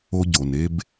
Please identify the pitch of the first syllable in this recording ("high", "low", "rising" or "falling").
high